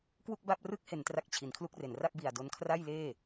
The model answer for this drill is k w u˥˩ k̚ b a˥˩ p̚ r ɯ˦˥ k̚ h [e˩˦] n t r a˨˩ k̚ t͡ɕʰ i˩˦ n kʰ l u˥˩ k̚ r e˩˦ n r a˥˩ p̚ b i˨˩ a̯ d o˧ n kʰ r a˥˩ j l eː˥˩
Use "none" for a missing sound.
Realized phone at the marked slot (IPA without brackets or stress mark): e˩˦